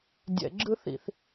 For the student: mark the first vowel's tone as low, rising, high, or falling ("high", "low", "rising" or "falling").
low